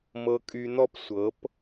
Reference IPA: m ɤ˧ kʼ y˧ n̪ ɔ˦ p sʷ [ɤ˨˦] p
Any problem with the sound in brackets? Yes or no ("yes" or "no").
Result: no